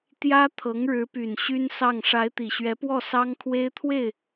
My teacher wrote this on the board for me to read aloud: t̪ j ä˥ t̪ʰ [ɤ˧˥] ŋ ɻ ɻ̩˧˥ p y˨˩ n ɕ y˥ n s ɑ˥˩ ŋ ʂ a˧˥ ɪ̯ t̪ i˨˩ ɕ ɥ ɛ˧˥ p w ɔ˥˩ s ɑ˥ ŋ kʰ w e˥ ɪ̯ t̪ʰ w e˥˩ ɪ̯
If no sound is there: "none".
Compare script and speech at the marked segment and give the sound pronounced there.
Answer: ɤ˧˥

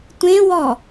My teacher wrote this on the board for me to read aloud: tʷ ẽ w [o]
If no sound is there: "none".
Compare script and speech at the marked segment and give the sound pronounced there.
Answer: ɔ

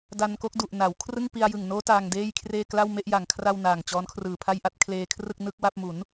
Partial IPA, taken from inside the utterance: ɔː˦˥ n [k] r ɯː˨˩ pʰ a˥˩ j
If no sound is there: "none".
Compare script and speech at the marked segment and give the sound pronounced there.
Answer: kʰ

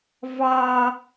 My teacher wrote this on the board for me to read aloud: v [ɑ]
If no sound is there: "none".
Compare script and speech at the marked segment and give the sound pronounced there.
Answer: ɑ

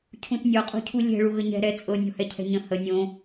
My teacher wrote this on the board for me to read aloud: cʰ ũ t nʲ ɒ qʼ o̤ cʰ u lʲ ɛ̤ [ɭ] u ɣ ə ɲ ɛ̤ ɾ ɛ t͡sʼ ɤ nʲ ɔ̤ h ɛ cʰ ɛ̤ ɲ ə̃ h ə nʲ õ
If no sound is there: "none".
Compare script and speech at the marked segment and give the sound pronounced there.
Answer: ɭ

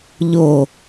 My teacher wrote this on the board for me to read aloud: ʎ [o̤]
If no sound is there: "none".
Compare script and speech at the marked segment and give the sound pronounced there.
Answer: o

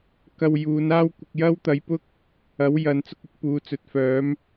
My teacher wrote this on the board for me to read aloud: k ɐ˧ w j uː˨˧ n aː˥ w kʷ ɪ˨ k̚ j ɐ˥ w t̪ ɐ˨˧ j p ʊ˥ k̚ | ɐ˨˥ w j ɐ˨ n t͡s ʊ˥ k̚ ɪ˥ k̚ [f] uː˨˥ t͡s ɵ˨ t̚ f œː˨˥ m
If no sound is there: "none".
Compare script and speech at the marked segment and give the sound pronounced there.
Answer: p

